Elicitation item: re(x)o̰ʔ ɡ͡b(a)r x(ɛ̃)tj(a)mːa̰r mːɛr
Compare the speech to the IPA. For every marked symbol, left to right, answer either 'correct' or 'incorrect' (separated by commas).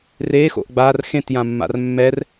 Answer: correct, correct, incorrect, incorrect